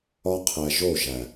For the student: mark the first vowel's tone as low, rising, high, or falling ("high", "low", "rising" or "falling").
high